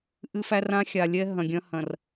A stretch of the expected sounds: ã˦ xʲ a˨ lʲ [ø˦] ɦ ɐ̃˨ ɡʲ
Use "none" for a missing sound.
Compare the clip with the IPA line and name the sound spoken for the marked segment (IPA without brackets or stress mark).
ɛ˦